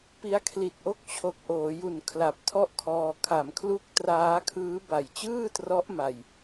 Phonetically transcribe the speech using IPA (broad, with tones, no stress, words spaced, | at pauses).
pi˦˥a̯kʰli˨˩t̚ʔo˥˩k̚ t͡ɕʰo˨˩k̚ʔoː˩˦ju˨˩n kʰla˨˩p̚tʰɔ˥˩ʔkʰɔː˧ kʰa˩˦mkʰlu˦˥k̚ traː˦˥kʰɯː˦˥ba˨˩j t͡ɕɯː˥˩trɔ˦˥ʔ ma˧j